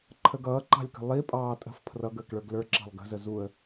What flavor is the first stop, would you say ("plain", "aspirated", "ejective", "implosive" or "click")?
click